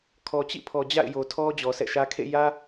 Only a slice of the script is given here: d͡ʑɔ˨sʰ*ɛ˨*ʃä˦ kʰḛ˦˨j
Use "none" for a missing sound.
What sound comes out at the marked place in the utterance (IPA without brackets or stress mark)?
ɛ̰˦˨